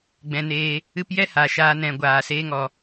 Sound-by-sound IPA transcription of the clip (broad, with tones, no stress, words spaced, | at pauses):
ɡ͡bɛ̃˧neː˧ | ɨ˦p jɛ˦ha˨ ʃaː˧nɛ̃˨ ɡʷaː˨seː˧ŋɔ˨